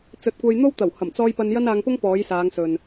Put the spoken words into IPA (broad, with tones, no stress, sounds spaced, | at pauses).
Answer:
t͡s ɵ˨˥ t̚ kʷ ɐ˧ j n̪ o˥ w t̪ ɐ˨˩ w h ɐ˨˩ m t͡s ɔː˧ j p ɐ˧ n j ɐ˥ n aː˧ ŋ p ʊ˥ ŋ p ɔː˨˥ j s aː˨˧ ŋ s ɵ˨ n